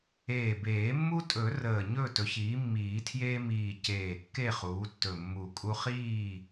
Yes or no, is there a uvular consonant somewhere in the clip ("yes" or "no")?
yes